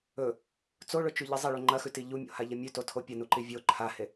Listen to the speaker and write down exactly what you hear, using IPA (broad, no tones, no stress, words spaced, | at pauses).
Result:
ɵ | t͡soɭɵt͡ʃʉʎɨ zˤeɭʉ ŋ͡ǃɐxʉti ʎumʲo̰haʎɐ mʲʉtotʰo pʲɐnuǃi vʲo ǃʰahe